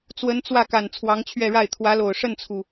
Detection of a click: absent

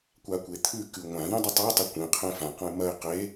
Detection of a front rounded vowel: absent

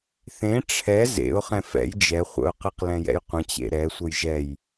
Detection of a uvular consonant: present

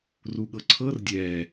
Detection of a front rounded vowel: absent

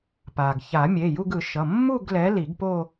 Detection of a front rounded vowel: absent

